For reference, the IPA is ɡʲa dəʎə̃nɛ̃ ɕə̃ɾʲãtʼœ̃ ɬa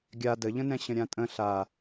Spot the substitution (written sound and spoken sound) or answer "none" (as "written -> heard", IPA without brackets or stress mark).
œ̃ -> ə̃